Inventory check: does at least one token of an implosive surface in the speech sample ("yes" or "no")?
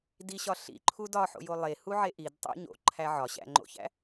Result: no